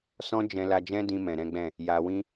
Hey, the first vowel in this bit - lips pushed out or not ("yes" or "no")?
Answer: yes